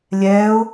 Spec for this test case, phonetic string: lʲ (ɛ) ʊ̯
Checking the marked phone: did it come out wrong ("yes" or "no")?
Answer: no